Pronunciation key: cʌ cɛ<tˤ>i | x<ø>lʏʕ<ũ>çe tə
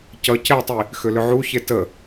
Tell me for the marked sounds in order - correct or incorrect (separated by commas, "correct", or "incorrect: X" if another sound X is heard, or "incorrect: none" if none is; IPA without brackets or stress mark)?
correct, correct, incorrect: u